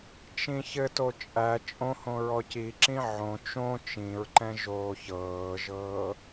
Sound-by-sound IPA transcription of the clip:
t͡ʃ ĩ ç ɘ t o t͡ʃʼ æ t͡ʃʼ õ h õ ɹ ɔ c i ǁ ĩ ʕ õ t͡ʃ õ t͡ʃ ĩ ɹ ǃ ɛ̃ ʒ oː ç ɤː ʒ ɤː

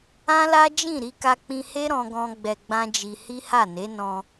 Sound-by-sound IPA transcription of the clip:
ã˦ l a˦ d͡ʒ ĩ˦˨ ɾ i˧ k a˧ k͡p ĩ˧ h e˦ ɾ ɔ̃˧ ɡ ɔ̃˧ ɡ͡b ɛ˧ ɡ͡b ã˦ d͡ʒ i˧ h i˦ h a˦˨ n e˨˦ n ɔ̃˧

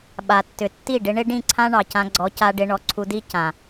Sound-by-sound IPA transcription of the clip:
ɓ a˨ tː ʏ˨ tː i˦˨ ɖ ɪ˧ ɳ ɪ˦ ɖ ĩ˦˨ ǀʰ ã˦ ɳ ɑ˨ c ã˧ ɡ͡ǀ ɔ˨˦ c a˦ ɖ ɪ˦ ɳ ɔ˧ ǀʰ u˧ d i˦ c ã˨

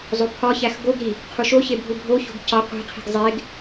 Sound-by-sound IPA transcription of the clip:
zˤ o pʰ ɒ ç æ x ɡ o ɡ ɾ i | qʰ u ʃ o ç e bʱ u bʱ o ç o̤ ɡ c ɒ qʷ i̤ qʰ i̤ ɡ zˤ e ɡ

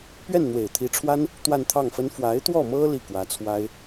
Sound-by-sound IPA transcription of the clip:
p ɥ ɛ˥˩ n n̪ w e˨˩ ɪ̯ t̪ʰ i˧˥ ʈ͡ʂʰ w a˥ n | t̪ w a˥˧ n t̪ʰ ɑ˥˩ ŋ f ə˥ n f w a˧˥ ɪ̯ t̪ w ɔ˥˩ m ɤ˥ l i˥˩ k w ä˧˥ t͡sʰ w a˥ ɪ̯

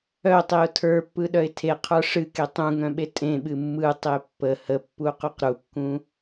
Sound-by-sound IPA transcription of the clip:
œ tˤ e ʊ̯ tʰ ə˞ pː ɯ ɗ œ ɪ̯ tʰ e qʰ ə˞ ʂ ɨ k e tˤ ũ ŋ œ̃ ɓ e tʼ ẽ ɓ ɨ mː ɯ tˤ e pː ə h ə pː u q u q ɾ u kː ũ

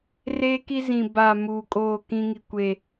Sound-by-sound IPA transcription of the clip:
r eː˦ k i˦ z ĩ˨ b a˨ m uː˨ kʼ oː˦˨ k ĩ˦ ŋ i˦ kʷ e˦˨

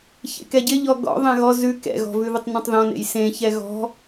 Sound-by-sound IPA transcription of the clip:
ç ḛ k ɛ ɟ ɪ ʎ ɔ ɡ ɔ̰ ðˤ ɛ̃ ɣ ɔ z ʉ k ɛ̰ ɣ ɔ̤ v ʉ ð ɪ tˤ n ɔ̃ tˤ ð ɔ̃ n ḛ j s ẽ ç ɛ ɣ ɔ̤

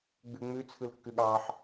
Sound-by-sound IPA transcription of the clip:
ɡ͡b ʉ ŋ͡m ʉ t͡sʰ ɯ l kː ʉ ɠ ɑ ħ

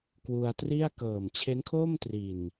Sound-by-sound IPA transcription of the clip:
k w u˧ a̯ t r i˥˩ a̯ k ɤː˨˩ m t͡ɕʰ e˦˥ n kʰ oː˥˩ m t r i˨˩ n

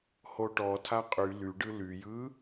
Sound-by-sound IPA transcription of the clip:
h o ʈ ɔ tʰ a qʼ y l y ɖ ɯ l y j ɯ

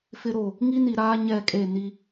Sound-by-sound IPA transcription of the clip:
f ɪ˦ ɾ o˦˨ | ŋ i˦ n i˨ ɾ aː˦ ɲ ɛ˦˨ kʼ e˦˨ n i˦

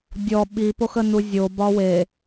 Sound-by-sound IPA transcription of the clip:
dʲ ɔ ɓ i p o x ə n u zʲ o b ɒ w e

